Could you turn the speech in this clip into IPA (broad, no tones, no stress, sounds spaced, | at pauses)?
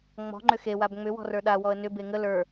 ŋ͡m ɔ̤ ŋ͡ǃ ʏ x e w a b ŋ͡m ʏ w ɔ̤ r ə˞ ɗ a w ɔ ə̯ n ʏ b e ŋ ə l ə˞